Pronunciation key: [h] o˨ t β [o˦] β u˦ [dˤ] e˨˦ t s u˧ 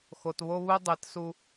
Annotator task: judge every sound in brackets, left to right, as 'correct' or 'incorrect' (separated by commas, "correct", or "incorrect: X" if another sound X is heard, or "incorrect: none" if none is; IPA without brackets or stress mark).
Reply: incorrect: x, correct, correct